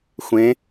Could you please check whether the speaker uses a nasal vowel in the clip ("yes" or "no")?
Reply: yes